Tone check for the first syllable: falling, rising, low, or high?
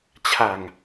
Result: low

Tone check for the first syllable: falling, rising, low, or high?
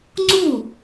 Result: falling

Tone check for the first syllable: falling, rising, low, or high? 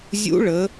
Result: rising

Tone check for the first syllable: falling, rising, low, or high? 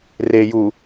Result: low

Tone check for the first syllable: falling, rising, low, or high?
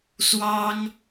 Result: high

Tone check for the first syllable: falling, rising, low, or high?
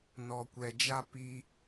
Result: low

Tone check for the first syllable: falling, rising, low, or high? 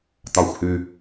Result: low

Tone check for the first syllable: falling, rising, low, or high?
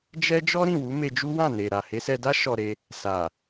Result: high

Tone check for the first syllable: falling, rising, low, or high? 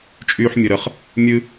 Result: high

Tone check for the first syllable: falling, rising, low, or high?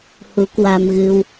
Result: rising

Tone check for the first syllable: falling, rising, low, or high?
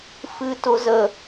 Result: high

